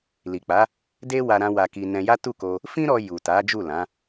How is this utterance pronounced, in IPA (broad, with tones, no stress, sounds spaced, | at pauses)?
l i˨ k͡p a˨˦ | d e˦ w a˧ ɾ ã˧ w a˧ k i˧ n ɛ̃˧ j a˦ t u˦˨ k o˧ | f ĩ˦ ɾ ɔ˧ j u˨ t a˨˦ d͡ʒ u˦˨ l ã˨˦